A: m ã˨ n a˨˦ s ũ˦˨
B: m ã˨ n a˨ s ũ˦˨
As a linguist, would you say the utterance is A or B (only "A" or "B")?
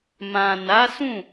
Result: A